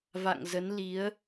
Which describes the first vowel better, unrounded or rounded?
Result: unrounded